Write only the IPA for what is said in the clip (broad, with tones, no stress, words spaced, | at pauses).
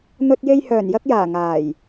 n̪ɵ˧t̚je˧j hœː˨˩njɐ˧k̚jaː˨˩ ŋaː˨˩j